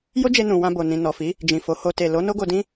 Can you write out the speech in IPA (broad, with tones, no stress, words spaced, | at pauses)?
jo˦d͡ʒe˧ nũ˨wã˧ bo˨ nĩ˨nɔ˨fi˨˦ | d͡ʒĩ˨ fo˨˦ho˧ te˨ lo˨˦no˦ɡo˧ dĩ˦